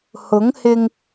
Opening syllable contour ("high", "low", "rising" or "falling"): rising